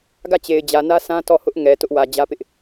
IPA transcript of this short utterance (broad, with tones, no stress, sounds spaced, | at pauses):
ɡ ä˦˨ t͡ɕ e˨ ɪ̯ d͡ʑ ä˨ n ä˦ s ã˦ t ɔ˦˨ h ʊ˦ ʔ ŋ ɛ˨ t ʊ˦ ʔ w ä˨ d͡ʑ ä˦ p ɪ˦ ʔ